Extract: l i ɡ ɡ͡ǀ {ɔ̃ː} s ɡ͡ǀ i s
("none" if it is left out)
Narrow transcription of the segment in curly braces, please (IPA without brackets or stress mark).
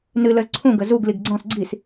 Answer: ɔ̃